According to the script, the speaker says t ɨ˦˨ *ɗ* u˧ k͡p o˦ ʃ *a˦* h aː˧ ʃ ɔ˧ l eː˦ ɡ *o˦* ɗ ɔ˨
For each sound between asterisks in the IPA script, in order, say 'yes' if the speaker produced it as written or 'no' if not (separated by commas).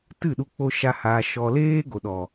yes, yes, no